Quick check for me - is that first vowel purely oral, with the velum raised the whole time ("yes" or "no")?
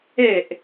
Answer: yes